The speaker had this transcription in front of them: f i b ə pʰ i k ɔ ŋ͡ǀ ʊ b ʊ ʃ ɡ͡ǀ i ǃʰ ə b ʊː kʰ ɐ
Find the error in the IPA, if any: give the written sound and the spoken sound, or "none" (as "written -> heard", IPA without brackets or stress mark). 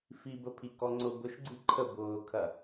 none